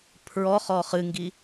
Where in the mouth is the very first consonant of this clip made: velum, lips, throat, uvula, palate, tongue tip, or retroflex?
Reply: lips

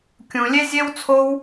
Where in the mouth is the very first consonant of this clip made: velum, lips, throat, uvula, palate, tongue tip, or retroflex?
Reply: velum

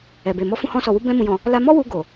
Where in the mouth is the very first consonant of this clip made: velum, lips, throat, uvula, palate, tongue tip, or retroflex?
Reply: lips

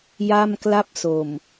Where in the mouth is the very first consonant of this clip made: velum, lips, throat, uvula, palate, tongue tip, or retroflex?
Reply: palate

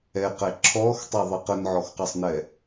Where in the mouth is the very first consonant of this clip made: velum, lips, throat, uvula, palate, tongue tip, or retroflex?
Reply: uvula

